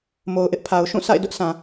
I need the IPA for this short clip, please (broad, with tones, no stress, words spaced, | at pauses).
mo˨ʊ̯ʔɪ˦ʔpʰa˨ʊ̯ ʃũ˦˨sa̰˦˨ɪ̯ dʊ˦ʔsã˨